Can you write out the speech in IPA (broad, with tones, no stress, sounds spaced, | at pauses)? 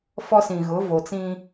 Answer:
f ɔ˦ s ĩ˨ ɣ ʊ˨˦ v o˨ t͡s ĩ˦